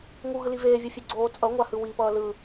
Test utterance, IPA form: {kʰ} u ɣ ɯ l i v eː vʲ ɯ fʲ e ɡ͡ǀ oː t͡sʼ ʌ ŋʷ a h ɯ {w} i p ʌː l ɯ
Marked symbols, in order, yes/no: no, yes

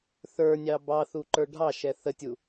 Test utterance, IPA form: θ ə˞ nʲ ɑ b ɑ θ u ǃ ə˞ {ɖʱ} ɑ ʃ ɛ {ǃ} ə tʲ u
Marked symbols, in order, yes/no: yes, no

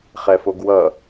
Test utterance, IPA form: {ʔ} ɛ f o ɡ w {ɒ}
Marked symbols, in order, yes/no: no, no

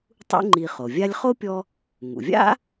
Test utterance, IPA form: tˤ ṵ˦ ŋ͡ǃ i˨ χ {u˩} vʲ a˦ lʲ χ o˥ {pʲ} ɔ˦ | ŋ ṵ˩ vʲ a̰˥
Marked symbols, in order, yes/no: no, yes

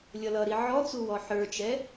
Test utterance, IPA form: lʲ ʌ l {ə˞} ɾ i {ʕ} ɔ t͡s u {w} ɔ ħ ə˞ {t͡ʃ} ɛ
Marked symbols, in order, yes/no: no, yes, yes, yes

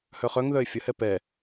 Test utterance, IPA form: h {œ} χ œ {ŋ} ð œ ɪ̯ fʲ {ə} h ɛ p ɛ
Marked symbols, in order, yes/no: yes, yes, yes

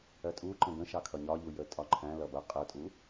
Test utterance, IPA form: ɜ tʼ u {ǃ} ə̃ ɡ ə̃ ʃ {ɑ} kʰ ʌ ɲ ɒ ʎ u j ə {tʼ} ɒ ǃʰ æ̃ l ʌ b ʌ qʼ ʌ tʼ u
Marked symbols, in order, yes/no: yes, yes, yes

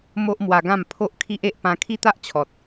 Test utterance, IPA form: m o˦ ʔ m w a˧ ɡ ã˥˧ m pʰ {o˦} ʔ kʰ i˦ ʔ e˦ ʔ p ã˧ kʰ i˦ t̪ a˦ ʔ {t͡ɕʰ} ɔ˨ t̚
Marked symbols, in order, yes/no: yes, yes

